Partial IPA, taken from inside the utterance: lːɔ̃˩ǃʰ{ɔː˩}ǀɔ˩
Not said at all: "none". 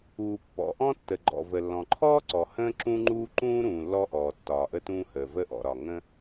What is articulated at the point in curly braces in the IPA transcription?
ɔː˥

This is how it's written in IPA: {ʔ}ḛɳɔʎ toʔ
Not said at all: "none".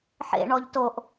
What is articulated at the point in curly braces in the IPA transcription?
ħ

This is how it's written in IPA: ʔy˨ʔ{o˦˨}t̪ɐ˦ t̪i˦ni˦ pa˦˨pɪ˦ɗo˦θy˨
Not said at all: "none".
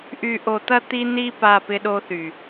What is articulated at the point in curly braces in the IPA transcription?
o˨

